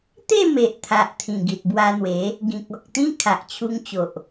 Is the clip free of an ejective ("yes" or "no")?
yes